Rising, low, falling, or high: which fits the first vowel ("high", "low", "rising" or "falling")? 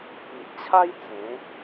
low